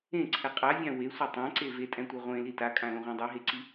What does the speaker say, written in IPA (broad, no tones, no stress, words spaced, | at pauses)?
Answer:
ẽǀʰɛ qʼavʲã wesʷi tˤãǀe vetʼɛ̃tʷɛ ʁʷẽli takʼãlõʁʷɛ̃ dˤeɦeǀi